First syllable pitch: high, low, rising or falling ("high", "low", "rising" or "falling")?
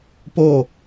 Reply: falling